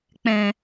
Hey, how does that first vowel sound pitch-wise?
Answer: low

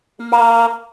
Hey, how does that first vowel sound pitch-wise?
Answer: high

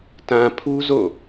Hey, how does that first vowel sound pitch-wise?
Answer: low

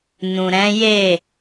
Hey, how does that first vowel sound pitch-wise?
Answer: low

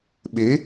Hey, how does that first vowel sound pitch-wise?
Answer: rising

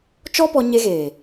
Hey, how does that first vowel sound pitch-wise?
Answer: high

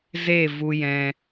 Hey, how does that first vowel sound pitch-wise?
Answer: falling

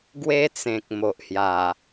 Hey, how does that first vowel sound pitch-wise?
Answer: high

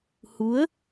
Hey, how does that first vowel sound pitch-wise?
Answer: rising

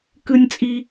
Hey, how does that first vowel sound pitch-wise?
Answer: high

